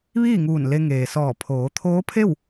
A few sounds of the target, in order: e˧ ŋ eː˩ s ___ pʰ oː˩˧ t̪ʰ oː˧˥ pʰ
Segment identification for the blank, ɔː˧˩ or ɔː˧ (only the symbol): ɔː˧˩